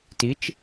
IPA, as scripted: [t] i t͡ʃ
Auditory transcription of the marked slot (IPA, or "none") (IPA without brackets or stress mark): t